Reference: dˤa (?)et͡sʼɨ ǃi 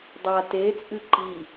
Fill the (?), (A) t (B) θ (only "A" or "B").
A